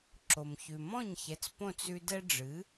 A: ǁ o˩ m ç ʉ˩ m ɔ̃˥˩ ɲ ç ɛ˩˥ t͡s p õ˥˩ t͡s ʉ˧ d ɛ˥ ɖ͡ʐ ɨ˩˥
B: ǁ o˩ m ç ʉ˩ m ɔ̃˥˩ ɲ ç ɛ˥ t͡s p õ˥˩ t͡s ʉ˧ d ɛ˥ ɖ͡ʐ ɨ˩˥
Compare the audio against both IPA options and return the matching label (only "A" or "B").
A